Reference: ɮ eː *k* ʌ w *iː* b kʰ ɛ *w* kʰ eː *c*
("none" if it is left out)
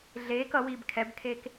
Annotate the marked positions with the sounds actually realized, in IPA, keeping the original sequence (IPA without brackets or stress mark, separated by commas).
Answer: k, iː, b, k